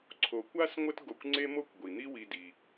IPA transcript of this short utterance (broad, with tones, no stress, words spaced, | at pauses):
ǀʰo˨kʷa˥sŋʷə˦t ɡo˨kʷŋ͡ǀe˦mo˦kʷ ɡʷi˩n̪i˦wi˨di˩